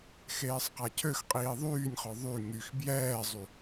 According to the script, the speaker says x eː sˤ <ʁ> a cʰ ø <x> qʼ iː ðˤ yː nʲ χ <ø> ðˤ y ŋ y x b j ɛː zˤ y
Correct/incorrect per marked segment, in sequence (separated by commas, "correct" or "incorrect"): incorrect, correct, incorrect